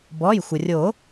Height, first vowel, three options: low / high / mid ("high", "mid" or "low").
mid